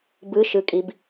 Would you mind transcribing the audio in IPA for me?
bɯʃɯkʼib

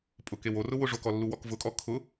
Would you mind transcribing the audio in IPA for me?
pʼʊkew orʊwʊ ʐokɔlːuwɔk vʊkʼɔ kʰʊ

